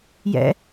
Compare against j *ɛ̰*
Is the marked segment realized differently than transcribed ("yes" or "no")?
no